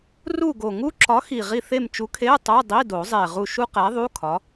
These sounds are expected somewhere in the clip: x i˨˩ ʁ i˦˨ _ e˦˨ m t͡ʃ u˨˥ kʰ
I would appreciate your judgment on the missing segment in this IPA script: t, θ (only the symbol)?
θ